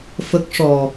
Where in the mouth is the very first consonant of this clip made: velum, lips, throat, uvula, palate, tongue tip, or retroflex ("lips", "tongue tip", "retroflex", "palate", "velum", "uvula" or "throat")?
lips